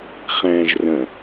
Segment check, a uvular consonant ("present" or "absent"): present